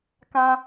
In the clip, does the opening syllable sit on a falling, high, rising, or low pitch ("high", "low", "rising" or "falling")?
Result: high